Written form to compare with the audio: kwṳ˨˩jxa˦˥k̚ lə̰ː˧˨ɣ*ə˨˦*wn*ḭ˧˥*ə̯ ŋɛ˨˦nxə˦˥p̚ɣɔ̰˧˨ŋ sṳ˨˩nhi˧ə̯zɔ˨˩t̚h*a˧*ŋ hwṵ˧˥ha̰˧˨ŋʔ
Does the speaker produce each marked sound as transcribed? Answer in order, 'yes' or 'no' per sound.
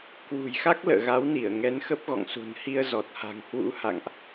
no, no, no

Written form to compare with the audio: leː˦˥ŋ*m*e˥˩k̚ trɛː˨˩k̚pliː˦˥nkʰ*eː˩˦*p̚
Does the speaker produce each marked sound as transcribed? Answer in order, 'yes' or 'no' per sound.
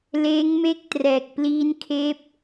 yes, no

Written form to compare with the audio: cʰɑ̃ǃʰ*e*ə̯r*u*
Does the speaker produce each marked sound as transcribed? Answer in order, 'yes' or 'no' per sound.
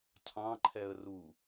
no, yes

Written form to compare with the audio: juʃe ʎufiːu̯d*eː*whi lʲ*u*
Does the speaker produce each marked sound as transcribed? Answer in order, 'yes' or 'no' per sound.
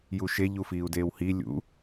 yes, no

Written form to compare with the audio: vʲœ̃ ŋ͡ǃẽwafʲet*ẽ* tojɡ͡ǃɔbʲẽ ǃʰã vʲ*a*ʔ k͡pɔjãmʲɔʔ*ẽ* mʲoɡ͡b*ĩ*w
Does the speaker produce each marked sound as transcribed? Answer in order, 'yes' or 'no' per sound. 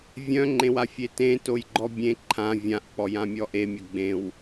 yes, no, no, no

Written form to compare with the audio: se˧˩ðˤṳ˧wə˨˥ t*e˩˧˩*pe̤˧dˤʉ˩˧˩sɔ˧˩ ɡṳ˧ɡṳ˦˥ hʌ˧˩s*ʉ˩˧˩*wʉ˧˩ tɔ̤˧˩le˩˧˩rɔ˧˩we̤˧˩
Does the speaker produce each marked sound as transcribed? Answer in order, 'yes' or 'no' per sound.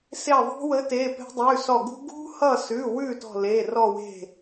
yes, yes

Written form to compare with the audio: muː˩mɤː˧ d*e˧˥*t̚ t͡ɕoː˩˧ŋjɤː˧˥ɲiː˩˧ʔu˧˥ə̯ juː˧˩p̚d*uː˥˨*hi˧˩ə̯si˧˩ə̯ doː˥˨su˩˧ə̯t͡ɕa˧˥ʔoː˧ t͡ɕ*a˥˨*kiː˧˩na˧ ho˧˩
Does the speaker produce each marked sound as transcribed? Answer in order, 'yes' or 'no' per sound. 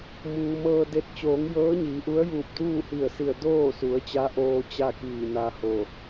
yes, yes, yes

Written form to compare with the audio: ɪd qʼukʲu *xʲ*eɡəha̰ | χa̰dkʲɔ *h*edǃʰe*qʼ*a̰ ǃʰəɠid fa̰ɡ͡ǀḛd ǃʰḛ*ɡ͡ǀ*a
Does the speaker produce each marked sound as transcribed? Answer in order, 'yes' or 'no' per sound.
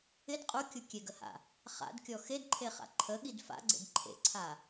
no, no, no, no

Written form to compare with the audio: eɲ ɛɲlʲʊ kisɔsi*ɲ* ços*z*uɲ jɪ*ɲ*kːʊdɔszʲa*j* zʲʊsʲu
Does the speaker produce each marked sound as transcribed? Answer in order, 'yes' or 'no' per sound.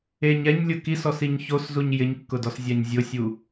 yes, yes, yes, no

